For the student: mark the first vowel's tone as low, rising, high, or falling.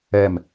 falling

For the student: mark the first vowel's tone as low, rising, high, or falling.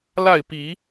falling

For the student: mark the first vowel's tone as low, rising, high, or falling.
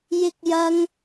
high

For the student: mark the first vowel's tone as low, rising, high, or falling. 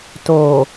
low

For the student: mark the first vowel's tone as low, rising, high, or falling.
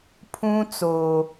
high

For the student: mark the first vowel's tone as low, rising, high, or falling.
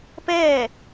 falling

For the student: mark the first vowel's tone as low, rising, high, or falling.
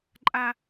high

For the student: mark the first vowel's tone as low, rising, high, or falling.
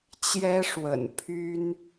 high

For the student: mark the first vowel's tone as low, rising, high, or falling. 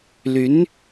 rising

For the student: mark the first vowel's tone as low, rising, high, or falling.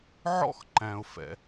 high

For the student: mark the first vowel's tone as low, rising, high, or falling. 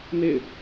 falling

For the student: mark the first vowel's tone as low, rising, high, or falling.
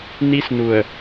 high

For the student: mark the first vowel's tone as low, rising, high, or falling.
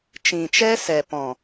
low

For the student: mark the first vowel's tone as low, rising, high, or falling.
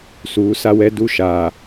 rising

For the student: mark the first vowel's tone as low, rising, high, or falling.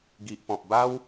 low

